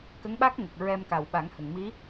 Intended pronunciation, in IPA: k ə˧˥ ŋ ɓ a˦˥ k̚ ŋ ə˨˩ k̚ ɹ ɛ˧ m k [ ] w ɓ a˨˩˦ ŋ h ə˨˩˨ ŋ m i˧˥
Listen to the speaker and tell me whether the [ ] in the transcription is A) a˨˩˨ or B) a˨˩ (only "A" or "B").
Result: B